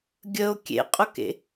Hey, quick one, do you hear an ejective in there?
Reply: yes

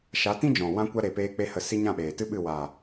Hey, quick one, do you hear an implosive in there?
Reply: yes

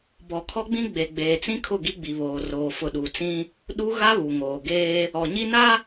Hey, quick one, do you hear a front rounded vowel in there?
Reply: no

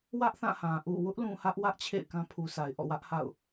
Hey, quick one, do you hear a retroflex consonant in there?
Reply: no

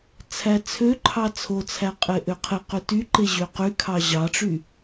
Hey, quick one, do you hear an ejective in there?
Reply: yes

